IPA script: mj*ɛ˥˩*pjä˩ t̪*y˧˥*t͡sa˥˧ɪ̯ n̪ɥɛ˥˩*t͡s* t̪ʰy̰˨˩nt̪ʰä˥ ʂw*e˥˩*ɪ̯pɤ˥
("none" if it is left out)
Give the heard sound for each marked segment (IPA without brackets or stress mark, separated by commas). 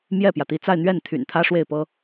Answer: ɛ˥˩, i˧˥, n, e˥˩